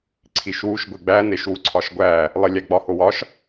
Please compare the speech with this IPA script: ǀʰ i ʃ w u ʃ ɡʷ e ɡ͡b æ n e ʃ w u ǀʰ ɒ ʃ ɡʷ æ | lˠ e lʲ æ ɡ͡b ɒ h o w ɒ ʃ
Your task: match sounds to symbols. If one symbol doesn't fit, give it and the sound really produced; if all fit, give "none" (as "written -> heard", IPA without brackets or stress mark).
none